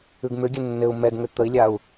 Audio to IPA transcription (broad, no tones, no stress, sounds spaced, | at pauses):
ʉ ɡ m ʏ ɡʲ ɘ nː ɘ u̯ m ɛ ɡ ŋ ʏ t̪ ə i̯ lʲ a u̯